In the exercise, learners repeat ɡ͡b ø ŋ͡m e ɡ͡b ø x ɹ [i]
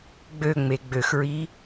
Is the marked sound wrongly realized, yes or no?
no